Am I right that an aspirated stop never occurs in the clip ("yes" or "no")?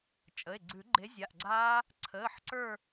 no